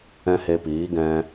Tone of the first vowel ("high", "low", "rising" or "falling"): high